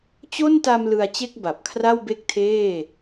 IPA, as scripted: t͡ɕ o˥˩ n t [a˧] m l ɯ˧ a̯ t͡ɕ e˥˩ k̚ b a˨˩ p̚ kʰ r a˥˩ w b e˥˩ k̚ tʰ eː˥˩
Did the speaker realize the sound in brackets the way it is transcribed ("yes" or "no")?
yes